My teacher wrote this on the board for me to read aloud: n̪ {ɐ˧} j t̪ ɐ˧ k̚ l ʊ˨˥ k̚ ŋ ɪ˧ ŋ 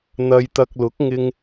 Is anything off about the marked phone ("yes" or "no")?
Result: no